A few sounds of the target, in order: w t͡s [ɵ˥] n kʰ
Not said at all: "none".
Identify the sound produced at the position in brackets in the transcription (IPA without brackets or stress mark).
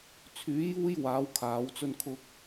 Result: ɵ˥